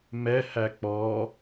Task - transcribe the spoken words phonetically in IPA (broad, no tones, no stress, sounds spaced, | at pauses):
m ɛ h æ k͡p ɔ